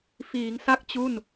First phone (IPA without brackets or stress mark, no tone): f